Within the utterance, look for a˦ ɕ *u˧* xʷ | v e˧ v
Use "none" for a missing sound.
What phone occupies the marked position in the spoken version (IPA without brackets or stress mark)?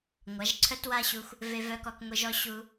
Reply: u˧